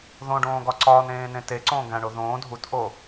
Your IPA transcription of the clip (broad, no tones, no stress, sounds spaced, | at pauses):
ð õ ɖ õː ɡ ɒ ǀ ɒː n ẽː n ẽ t e ǀ õː ɡ æ̃ ɳ o ð õː dʱ u t ʔ o